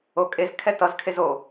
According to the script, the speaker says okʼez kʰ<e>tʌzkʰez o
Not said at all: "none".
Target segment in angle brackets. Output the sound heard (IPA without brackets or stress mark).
ɛ